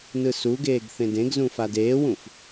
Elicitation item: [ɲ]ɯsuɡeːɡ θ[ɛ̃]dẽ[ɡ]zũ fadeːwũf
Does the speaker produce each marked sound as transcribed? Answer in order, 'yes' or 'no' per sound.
no, no, yes

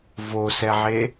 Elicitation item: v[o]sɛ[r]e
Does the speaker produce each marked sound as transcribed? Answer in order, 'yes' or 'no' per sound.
yes, no

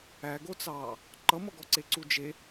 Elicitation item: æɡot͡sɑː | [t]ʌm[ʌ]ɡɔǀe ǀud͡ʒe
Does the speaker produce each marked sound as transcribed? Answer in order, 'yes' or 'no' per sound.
no, yes

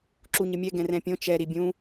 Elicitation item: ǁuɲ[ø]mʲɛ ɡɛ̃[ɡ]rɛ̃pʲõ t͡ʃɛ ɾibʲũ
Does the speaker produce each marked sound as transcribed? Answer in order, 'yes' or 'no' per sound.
no, no

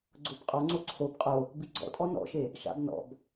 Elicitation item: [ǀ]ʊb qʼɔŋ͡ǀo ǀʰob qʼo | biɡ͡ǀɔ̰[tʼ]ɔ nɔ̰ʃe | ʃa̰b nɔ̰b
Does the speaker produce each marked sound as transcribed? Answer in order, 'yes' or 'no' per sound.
no, yes

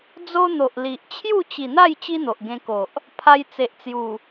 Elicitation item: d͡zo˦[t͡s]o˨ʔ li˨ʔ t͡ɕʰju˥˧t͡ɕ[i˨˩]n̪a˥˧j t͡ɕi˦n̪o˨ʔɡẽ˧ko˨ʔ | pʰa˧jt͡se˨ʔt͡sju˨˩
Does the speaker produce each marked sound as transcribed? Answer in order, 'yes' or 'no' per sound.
no, yes

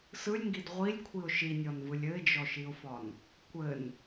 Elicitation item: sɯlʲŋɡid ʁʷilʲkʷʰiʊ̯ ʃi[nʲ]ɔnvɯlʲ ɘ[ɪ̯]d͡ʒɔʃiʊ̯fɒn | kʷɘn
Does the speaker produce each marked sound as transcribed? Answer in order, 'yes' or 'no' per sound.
yes, yes

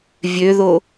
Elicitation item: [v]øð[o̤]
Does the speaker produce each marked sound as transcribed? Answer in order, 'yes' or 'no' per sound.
no, no

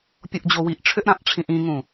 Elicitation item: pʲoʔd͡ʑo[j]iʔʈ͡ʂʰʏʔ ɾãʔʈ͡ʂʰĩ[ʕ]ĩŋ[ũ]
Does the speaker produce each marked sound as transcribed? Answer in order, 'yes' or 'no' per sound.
no, no, yes

